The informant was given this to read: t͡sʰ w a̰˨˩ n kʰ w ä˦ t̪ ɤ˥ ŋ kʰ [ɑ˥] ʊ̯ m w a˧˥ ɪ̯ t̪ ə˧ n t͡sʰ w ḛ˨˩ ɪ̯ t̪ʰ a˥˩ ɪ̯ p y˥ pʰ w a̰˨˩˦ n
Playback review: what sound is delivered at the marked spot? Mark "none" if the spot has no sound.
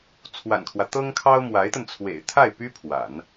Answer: ɑ˥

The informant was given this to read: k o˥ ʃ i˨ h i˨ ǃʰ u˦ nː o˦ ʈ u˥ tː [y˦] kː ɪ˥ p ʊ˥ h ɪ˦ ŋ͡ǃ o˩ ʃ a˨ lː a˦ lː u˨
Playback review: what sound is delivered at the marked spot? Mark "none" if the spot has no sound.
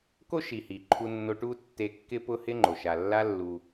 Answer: e˦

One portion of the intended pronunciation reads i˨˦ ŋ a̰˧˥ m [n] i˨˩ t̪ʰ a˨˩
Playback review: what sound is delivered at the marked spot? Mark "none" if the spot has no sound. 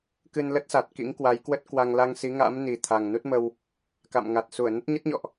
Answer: n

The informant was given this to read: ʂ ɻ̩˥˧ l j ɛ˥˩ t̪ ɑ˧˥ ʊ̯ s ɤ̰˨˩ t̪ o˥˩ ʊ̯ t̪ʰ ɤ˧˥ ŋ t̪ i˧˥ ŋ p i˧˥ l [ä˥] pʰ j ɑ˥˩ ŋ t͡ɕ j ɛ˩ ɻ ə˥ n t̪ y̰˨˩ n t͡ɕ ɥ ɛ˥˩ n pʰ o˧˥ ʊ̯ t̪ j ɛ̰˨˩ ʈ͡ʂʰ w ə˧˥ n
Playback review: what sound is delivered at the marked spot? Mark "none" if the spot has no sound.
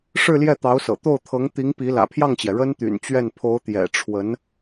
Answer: ä̰˨˩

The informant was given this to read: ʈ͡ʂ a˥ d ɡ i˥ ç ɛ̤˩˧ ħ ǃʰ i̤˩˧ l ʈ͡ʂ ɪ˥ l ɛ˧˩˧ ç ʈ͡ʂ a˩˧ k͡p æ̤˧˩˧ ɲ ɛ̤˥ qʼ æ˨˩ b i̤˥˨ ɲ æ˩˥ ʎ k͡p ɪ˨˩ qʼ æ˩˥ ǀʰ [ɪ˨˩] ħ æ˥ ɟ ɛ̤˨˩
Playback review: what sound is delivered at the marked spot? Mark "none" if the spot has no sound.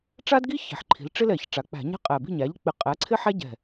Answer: ɪ˥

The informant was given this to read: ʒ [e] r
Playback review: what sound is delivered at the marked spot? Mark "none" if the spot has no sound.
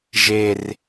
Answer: e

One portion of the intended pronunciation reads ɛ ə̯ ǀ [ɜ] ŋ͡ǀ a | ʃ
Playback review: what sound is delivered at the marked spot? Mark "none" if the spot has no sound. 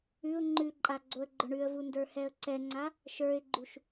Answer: ɛ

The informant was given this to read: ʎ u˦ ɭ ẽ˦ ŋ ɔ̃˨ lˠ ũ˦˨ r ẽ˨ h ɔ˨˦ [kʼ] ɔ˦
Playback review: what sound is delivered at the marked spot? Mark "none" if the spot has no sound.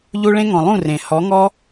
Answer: ŋ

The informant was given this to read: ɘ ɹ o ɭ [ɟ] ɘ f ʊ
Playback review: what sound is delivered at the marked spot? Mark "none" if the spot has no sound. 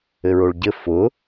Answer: ɟ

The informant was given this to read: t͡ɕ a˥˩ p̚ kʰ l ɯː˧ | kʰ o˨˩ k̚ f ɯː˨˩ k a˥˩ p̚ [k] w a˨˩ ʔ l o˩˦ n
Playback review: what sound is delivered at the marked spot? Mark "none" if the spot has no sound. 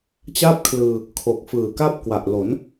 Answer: k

